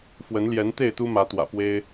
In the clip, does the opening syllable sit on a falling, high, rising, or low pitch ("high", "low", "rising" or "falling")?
rising